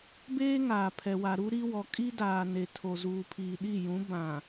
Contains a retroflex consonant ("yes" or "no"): no